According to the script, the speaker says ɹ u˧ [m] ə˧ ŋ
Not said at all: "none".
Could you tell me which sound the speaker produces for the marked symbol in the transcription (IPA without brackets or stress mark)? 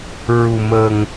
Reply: m